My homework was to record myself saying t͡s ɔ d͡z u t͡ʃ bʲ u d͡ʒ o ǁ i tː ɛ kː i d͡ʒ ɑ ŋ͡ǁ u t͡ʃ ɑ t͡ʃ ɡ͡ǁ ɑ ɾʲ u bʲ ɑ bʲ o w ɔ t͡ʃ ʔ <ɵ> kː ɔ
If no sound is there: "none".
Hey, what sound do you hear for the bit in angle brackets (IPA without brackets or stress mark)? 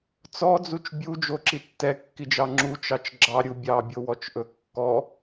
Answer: ɵ